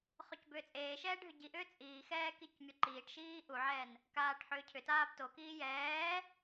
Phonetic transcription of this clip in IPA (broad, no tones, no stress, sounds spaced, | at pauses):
χ o c b ʏː t͡sʼ eː ʃ ɛː ɖʱ ʏ ɟ i ʔ ʏː t͡sʼ iː x ɛː k i c mʲ o ǃ iː ʈ ʃ iː ʔ u ʕ ɛː n | k aː ʈ ħ ʏː cʰ ʏ t aː b t o k iː j ɛː